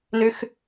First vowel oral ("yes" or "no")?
yes